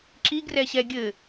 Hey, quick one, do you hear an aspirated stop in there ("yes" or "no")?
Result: no